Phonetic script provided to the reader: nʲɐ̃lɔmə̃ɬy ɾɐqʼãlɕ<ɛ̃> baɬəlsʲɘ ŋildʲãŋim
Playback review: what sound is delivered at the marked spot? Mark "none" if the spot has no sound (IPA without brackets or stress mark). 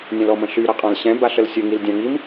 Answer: ɛ̃